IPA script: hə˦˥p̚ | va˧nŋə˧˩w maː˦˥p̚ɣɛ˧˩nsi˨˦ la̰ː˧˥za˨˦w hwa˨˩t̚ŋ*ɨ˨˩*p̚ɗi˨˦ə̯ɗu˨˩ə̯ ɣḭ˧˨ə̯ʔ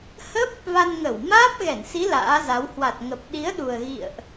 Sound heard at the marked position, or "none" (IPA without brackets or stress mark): ə˨˩